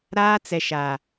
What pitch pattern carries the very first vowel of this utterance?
high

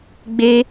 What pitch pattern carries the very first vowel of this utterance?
high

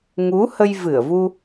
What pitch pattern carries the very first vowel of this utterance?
rising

